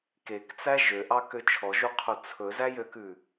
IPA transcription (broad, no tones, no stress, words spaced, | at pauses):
kekt͡sæ ʒøʔɑkø t͡ʃʰɔʒuqʰu t͡sʰɵzæjøkʉ